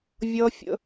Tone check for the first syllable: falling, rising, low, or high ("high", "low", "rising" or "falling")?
high